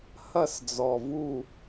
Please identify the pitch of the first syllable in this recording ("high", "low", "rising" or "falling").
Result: falling